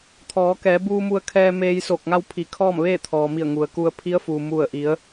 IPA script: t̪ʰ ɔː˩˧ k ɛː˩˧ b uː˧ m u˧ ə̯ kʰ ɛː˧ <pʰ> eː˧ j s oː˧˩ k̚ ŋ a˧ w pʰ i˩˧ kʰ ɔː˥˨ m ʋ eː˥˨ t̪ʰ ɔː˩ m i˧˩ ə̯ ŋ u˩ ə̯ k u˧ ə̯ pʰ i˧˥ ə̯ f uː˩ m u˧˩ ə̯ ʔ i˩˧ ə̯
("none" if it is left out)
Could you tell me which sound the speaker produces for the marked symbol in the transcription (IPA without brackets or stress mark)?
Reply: m